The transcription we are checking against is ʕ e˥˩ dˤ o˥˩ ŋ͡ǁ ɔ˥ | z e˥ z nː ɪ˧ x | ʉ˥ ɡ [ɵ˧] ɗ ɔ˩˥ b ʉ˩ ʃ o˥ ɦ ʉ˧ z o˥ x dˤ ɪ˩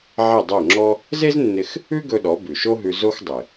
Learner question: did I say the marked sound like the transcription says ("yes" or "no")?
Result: yes